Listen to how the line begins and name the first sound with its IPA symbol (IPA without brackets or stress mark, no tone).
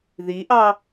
ð